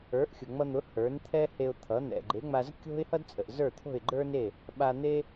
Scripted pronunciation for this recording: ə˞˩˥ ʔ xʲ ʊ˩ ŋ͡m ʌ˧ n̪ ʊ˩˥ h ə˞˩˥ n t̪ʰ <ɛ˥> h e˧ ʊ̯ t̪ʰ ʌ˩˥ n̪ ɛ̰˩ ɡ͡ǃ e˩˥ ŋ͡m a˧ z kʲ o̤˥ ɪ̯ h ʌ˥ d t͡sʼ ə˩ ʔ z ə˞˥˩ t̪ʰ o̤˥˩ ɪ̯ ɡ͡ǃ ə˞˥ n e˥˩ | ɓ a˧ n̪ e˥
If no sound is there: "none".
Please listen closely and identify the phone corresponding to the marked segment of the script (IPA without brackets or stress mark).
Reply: ɛ˥